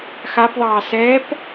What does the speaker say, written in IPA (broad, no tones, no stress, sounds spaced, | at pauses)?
x a p ðˤ ɑː s ɛː p